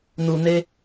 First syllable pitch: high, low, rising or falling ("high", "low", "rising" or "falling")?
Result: low